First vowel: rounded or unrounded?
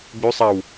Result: rounded